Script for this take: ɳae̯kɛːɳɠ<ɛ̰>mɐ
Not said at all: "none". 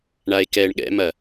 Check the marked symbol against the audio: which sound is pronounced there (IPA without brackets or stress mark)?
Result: ɛ̰